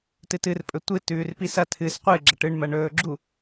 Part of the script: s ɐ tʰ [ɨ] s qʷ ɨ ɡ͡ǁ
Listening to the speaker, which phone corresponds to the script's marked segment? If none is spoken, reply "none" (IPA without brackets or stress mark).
ɨ